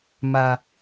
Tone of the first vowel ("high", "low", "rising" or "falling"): low